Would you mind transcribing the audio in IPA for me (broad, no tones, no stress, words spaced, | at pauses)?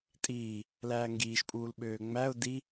tʼiː | læːŋɡiːʃpʼuːl ɓøːŋ͡mæʊ̯ di